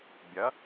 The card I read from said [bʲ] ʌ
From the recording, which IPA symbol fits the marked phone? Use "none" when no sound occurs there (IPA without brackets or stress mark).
bʲ